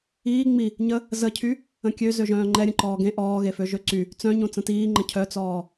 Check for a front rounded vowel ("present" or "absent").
present